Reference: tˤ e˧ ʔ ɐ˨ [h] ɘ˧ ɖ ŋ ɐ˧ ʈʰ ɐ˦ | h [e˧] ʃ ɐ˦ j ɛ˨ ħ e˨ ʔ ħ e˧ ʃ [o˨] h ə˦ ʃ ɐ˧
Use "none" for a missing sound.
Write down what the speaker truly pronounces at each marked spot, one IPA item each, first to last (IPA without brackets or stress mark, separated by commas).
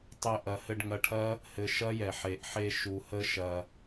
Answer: h, ɘ˧, u˨